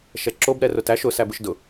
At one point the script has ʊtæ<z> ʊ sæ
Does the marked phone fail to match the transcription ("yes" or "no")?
yes